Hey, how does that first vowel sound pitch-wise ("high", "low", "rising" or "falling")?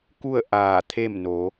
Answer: falling